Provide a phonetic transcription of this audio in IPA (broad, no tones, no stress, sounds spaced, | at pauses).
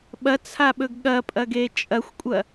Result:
ɓ ɐ t͡sʰ a ɓ ɵ ɡ ɠ ɐ pʼ ɐ ɡ e t͡ʃʼ ɐ xʷ kʷʼ ɐ